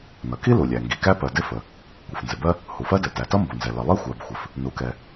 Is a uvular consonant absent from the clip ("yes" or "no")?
yes